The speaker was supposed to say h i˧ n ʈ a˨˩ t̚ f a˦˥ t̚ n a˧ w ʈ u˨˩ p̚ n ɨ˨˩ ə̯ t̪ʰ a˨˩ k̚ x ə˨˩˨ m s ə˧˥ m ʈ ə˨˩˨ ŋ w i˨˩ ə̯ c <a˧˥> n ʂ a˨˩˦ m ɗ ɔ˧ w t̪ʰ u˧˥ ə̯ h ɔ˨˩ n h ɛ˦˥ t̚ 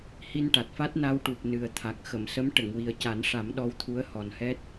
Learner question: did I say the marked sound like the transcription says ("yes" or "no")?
no